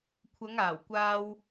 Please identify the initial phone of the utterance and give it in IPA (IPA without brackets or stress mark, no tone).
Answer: kʷʰ